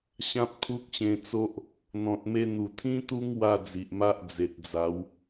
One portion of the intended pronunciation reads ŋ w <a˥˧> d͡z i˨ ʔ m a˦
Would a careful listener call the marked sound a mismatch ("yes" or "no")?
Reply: no